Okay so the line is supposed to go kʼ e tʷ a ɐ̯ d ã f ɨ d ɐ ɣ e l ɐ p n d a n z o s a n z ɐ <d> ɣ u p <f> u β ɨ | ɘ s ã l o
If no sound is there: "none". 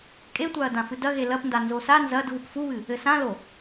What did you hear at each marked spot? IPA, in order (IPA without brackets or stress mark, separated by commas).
d, f